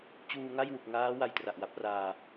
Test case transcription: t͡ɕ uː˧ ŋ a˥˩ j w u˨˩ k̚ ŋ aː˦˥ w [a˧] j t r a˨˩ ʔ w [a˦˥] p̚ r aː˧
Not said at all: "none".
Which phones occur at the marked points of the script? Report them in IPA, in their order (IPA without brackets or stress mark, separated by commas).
a˧, a˦˥